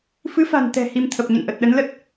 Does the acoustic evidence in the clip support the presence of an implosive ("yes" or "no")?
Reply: yes